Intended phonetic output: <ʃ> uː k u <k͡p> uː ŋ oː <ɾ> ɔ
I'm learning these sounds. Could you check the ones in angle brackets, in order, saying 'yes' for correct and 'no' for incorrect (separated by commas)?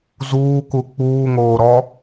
no, yes, yes